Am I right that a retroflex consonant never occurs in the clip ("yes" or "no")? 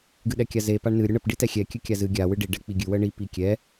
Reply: no